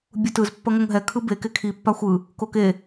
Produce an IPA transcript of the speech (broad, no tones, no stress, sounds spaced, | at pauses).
bʲ u t ɯ z pː ʌ ŋ o ŋ ɦ ɛ kʰ ɯ b e k e kʰ i pː a xʷ ɯ | k o k e